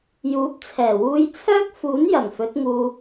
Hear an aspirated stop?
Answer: yes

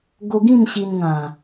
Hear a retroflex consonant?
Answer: no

